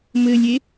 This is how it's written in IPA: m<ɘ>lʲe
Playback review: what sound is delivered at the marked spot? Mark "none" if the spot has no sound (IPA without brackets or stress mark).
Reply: ɘ